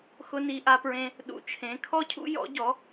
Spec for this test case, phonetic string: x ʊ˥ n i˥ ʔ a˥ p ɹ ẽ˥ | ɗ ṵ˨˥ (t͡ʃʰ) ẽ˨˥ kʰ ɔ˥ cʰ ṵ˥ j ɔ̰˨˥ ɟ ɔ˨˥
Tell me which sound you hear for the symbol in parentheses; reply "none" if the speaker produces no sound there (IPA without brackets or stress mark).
t͡ʃʰ